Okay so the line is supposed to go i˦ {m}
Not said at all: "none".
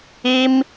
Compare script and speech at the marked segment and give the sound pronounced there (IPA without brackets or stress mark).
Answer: m